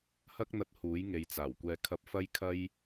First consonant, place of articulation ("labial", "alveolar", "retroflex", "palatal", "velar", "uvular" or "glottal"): glottal